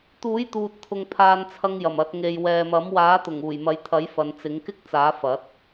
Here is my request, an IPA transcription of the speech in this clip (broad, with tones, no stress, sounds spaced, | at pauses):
t̪ uː˨˥ j t̪ uː˨ t̚ t̪ʰ ʊ˨ ŋ pʰ aː˧ n t͡sʰ ɐ˧ ŋ j ɐ˨˩ m ɐ˨˥ t̚ ŋ e˨ j w ɛː˨ m ɐ˨˥ m w aː˨˥ t̪ ʊ˨˩ ŋ uː˨˩ j m ɐ˨˥ j t̪ʰ ɐ˨˥ j f ɐ˨˧ n t͡s ɪ˨˥ ŋ k ɪ˥ k̚ t͡s aː˨˥ f ɐ˨˥ t̚